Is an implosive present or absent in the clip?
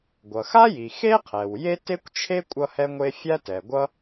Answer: absent